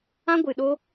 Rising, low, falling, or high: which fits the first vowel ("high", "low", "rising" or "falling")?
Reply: high